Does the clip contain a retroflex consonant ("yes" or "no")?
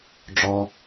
yes